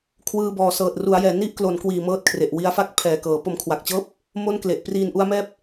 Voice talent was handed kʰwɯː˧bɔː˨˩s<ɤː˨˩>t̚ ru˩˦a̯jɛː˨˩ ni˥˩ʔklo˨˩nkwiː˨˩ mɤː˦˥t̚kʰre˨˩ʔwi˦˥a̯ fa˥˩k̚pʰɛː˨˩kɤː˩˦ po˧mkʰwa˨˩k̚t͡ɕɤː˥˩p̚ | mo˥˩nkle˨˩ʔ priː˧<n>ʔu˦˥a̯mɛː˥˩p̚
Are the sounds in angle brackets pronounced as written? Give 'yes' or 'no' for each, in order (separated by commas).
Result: yes, yes